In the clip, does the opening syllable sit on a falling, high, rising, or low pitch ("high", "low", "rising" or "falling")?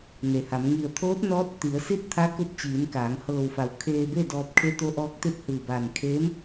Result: low